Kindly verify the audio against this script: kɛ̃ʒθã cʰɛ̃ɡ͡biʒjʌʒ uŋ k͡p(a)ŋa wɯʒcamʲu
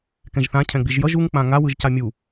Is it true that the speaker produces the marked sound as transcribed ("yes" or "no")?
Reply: no